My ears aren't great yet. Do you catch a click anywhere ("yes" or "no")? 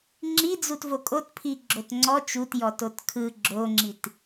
yes